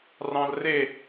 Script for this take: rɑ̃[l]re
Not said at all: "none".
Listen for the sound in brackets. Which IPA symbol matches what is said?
l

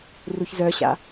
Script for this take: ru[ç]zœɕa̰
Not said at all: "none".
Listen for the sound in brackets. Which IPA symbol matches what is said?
ç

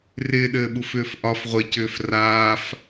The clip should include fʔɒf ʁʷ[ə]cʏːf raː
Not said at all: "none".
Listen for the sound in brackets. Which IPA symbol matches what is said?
ɪ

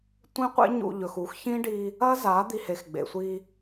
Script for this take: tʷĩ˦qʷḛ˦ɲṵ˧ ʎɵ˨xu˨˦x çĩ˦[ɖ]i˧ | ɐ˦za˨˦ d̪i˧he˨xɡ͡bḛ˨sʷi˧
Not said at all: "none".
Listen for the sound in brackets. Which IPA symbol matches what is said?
ɖ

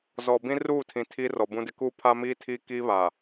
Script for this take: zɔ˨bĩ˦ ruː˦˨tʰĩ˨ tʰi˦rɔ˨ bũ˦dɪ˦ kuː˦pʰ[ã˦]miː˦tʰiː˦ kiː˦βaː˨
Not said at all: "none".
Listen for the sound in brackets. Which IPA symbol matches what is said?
a˦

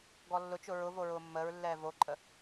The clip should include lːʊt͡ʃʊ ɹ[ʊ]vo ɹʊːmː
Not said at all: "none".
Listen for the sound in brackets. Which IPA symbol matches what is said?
ʊ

